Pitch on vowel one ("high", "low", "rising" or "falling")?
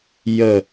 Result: falling